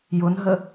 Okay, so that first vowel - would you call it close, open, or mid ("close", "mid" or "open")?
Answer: close